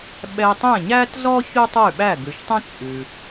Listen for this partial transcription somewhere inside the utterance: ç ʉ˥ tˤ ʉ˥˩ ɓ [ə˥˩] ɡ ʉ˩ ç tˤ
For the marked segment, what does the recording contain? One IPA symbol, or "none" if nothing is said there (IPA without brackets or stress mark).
æ˥˩